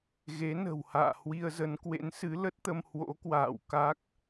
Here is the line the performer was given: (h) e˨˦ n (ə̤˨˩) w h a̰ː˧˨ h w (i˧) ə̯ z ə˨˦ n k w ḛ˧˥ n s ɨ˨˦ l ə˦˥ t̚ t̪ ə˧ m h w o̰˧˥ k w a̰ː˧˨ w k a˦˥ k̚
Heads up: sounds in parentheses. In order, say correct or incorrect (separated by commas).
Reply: incorrect, correct, correct